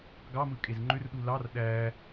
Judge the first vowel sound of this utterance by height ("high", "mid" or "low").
low